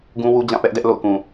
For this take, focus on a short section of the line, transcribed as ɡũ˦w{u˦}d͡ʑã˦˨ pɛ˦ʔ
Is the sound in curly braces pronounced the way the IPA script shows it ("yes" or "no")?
yes